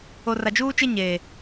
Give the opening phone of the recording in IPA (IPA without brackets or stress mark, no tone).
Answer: o